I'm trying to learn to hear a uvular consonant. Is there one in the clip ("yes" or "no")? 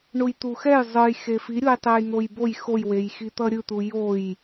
no